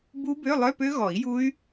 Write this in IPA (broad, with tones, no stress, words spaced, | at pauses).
bu˦˥ bø˧˥˧lˠœ˧˥˧pø˦˥ɣɔ˨˩˦i̯ ju˦˥y̯